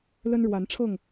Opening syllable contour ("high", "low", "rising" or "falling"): high